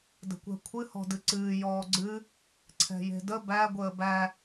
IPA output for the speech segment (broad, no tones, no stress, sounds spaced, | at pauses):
d ə̤ kʷ ɛ̤ kʷʰ ɨ h ɔ̤ d ɨ ǀ ɨː j ɔː ɡ͡ǀ ɨ | ǀʰ ɛ̤ j e̤ d ə b æ ɡʷ əː b æ